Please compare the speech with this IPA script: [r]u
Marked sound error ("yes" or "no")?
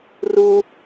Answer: no